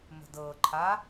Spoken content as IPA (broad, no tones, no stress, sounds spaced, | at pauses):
m ə̤ d ɤ ǃʰ a